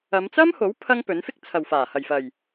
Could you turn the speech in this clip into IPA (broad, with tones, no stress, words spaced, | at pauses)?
ɐ˨˧mt͡sɐ˥mho˨˥w pʰɐ˥ŋpɵ˨˥n fɪ˥k̚ t͡sʰɐ˨wfaː˨˩ hɐ˨˩jfɐ˨˩j